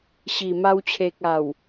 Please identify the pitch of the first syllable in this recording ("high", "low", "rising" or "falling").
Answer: low